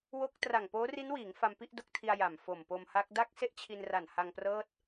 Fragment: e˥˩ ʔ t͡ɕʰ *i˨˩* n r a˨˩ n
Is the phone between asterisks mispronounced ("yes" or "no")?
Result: yes